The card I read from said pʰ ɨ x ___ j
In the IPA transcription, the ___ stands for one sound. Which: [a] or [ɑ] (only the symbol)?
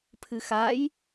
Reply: a